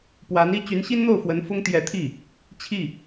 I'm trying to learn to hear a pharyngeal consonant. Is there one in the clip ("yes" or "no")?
no